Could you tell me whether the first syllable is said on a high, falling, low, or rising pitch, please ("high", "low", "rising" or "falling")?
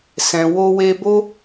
low